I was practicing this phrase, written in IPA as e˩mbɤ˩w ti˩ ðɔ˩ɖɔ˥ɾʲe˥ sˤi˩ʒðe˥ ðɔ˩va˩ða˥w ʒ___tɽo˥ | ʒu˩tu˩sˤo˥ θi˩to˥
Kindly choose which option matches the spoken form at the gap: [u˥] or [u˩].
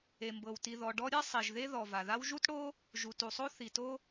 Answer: u˥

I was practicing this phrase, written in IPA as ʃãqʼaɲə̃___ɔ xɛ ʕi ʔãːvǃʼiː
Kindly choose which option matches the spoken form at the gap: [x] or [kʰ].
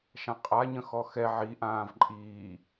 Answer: x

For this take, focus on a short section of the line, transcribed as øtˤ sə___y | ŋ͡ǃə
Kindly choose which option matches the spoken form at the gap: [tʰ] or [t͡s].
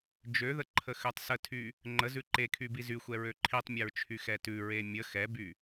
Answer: tʰ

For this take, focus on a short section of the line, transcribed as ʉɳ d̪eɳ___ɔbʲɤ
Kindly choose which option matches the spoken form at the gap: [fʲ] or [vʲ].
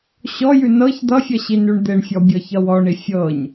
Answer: fʲ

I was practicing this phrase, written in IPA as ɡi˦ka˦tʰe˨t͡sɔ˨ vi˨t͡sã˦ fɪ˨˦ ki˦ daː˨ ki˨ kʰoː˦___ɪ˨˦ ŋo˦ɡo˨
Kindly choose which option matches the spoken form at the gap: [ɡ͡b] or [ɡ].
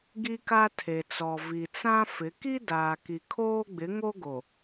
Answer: ɡ͡b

